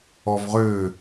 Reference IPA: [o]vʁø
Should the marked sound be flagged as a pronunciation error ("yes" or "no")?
yes